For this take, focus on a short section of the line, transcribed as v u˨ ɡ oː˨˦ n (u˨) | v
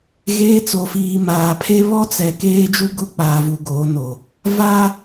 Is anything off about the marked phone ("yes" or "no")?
yes